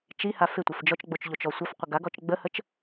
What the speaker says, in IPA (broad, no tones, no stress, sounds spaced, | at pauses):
t͡ʃ i h a f ɪ tʷ ɪ f d͡ʒ ɔ t͡ʃ ɡ͡b o t͡ʃ ʎ o t͡ʃ ɔ sʷ ɐ f qʷ ə ɡ a ɡ ɔ t͡ʃ ɡ͡b ə h ə t͡ʃ